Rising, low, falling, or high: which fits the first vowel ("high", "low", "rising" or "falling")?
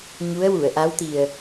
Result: rising